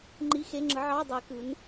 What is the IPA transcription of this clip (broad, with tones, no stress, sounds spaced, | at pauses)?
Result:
ŋ͡ǃ i˧˥˧ x e˧˥˧ ŋ͡ǁ ɯ˨˥ ʕ ɑ˧˥˧ dˤ i˨˥ k ɯ˨˥ n